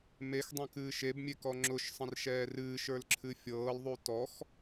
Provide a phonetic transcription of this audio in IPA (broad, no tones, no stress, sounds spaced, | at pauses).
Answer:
m e x dˤ ɛ̃ k ɨː ʃ e b mʲ e k ɔ ŋ͡ǁ ʊ ʃ sˤ ə̃ r ʃ ɛː r ɨː ʃ ə˞ l ǁʰ ɨ fʲ ɤː l ðˤ u t ɔ x